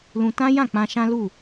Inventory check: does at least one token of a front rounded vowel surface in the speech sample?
no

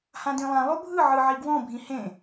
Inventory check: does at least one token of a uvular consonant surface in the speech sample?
no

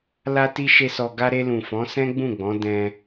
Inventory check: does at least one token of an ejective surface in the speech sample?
no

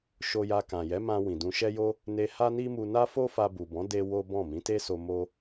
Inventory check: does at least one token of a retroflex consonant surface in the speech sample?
no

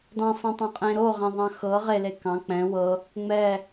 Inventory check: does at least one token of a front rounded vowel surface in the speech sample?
no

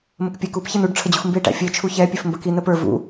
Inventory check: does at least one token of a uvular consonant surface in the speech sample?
no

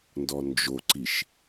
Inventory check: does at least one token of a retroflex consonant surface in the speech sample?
no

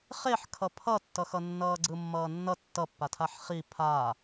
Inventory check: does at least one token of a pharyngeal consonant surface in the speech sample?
yes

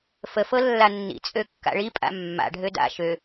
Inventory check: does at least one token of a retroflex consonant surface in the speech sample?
yes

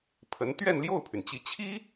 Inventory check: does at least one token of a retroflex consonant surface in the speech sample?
no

